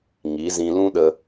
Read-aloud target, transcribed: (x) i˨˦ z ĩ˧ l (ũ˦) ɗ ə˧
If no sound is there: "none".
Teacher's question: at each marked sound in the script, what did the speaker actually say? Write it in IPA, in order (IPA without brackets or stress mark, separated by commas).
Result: ŋ, ũ˦